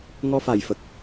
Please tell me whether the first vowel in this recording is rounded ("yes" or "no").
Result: yes